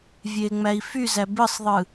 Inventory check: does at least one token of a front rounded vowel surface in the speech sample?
yes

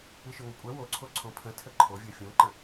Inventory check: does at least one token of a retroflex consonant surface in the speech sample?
no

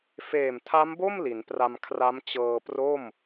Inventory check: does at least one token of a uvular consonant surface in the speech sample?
no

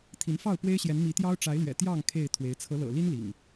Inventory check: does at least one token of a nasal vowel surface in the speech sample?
no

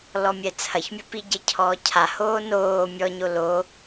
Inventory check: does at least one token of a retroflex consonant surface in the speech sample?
no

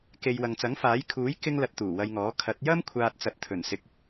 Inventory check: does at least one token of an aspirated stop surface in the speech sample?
yes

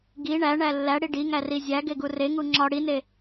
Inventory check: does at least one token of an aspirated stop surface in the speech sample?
no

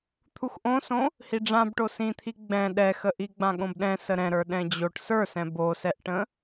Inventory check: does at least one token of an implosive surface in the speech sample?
yes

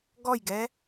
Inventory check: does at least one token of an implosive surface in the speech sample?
no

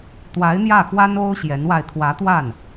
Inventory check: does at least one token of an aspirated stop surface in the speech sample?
yes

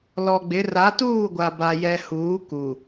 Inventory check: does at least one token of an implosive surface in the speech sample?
no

